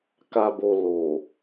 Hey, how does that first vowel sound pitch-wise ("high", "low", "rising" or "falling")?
low